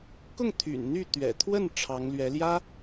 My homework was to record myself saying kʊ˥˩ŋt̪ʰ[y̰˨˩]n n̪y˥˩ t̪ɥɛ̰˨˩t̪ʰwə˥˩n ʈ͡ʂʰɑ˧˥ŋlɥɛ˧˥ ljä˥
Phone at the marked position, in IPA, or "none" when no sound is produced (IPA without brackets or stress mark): y̰˨˩